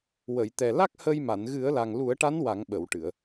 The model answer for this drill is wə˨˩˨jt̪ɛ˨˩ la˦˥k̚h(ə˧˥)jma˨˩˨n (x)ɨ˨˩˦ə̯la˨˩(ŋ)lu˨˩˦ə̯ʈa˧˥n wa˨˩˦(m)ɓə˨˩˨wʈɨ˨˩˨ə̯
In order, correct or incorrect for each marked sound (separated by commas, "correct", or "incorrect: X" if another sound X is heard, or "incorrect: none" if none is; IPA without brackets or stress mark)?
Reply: incorrect: ə˧, incorrect: ɣ, correct, incorrect: ŋ